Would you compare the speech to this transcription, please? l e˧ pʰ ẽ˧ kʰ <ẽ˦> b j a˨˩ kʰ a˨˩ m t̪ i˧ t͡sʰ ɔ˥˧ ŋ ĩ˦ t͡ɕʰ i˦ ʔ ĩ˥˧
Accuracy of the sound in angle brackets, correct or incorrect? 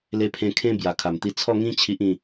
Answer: incorrect